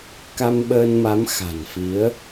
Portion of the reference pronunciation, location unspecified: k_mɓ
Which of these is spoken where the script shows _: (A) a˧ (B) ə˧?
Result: A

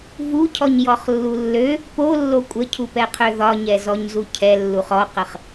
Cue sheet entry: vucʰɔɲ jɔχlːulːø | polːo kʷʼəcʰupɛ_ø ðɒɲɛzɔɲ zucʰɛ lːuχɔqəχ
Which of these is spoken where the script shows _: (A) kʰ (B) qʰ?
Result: B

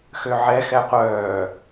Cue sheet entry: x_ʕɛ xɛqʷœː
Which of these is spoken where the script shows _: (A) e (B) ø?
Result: B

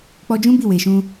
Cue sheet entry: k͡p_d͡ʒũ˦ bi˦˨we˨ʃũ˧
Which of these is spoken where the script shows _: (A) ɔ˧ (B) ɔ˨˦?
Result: A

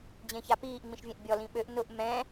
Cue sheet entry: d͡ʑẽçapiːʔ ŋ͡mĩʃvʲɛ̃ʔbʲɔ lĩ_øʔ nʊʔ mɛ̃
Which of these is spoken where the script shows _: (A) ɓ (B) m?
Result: A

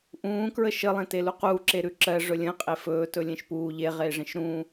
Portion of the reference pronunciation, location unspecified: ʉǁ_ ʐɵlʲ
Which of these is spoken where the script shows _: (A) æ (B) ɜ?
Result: B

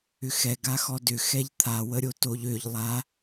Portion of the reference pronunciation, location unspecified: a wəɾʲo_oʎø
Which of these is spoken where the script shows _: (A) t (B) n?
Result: A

